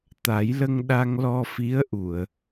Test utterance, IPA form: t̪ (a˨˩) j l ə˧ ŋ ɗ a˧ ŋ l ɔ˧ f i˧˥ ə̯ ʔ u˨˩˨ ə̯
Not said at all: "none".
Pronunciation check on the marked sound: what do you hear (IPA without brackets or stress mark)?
a˨˩˦